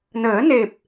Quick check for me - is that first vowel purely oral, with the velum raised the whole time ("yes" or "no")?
yes